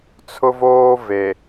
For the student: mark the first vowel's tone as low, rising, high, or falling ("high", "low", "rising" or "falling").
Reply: high